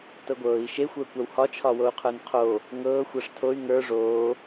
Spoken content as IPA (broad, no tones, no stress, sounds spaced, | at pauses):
t ɤ ɡʷ ɤː i̯ ʃ e xʷ ə˞ kʷ a w h ɒ t͡ʃʰ ɒ w o u̯ qʰ ə˞ n qʰ o | ŋ ɤː xʷ a ʂ tʰ o y̯ ŋ ə˞ ʐ oː